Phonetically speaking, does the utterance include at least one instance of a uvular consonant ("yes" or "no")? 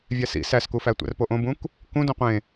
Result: yes